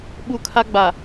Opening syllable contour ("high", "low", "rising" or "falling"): high